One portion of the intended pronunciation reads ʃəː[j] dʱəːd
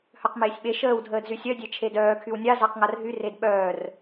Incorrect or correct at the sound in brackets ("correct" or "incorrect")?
incorrect